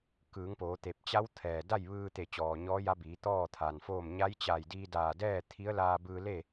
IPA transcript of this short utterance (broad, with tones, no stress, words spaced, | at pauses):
kɯː˩˧ŋpoː˩˧t̪e˧˩p̚ t͡ɕa˧˥w t̪ʰɛː˩ da˥˨jʋɯː˧t̪e˧˩ t͡ɕɔː˩ɲɔː˧˥ja˧˥biː˩˧ t̪ɔː˥˨t̪ʰa˩nfoː˥˨m ɲa˧˥jt͡ɕa˧˩jdiː˧daː˧˩ dɛː˥˨t̪ʰi˧˥ə̯laː˧bɯː˧ le˥˨